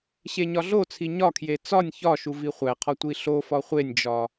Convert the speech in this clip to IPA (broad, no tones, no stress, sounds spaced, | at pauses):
ɕ e ɲ ɒ ɮ o t͡sʰ i ɲ ɒ kʰ j e t͡s ɒ nʲ ç ɒ ʃ u v i χʷ æ qʰ ɒ tʷ i ɬ o f ɒ χʷ e nʲ d͡ʒ ɒ